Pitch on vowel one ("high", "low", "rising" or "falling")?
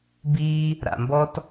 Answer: high